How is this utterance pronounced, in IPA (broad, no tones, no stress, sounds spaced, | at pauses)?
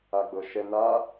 a ɡ͡b ɤ ʃ ɛ n a